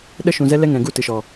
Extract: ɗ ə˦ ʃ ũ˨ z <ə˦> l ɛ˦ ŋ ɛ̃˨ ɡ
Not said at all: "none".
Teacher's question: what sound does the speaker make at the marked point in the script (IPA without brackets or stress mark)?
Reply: ɛ˦